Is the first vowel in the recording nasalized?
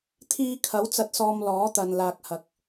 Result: no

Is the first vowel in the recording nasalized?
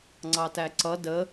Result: no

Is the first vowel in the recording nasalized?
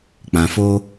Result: yes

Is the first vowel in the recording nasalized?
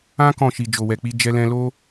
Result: yes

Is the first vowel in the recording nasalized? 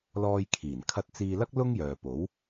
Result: no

